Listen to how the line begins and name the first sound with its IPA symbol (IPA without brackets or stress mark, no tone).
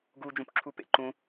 ɡ